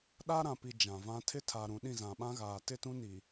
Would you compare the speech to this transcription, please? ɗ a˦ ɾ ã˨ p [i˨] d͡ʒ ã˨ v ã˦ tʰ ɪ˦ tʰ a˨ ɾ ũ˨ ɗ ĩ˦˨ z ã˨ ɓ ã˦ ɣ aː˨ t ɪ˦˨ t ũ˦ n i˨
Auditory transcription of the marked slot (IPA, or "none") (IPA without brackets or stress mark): i˨